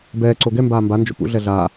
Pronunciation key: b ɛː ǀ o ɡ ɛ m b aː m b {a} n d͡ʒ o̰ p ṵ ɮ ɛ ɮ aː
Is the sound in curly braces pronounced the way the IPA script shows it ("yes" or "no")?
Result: yes